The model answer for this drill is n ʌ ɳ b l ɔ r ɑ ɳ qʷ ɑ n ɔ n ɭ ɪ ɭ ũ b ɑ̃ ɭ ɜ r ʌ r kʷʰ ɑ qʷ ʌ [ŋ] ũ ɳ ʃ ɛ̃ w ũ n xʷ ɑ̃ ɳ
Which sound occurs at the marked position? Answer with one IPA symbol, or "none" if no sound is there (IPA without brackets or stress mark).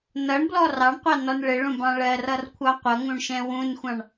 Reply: ŋ